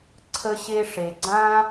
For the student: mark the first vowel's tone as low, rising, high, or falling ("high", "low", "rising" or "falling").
high